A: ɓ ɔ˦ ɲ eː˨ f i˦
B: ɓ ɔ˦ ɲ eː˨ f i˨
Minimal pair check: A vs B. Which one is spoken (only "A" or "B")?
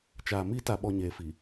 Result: B